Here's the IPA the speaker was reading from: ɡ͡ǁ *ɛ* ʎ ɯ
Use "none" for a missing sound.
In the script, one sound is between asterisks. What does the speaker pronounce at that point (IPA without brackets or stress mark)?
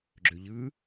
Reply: ø